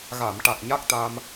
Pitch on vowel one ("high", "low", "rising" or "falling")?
low